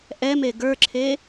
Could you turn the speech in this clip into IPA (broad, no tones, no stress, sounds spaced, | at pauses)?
ʔ ɛ m e ɡ ə˞ ǁʰ e